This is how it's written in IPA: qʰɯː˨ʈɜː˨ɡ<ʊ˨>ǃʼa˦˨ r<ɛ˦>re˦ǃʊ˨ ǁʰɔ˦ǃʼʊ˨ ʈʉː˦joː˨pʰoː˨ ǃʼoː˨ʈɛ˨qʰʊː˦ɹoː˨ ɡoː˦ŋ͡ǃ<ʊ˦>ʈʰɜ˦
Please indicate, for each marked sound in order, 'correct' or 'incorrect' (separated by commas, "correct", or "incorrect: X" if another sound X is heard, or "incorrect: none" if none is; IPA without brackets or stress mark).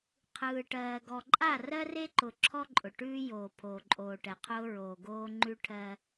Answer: incorrect: ɔ˨, incorrect: ɜ˦, incorrect: ʉ˦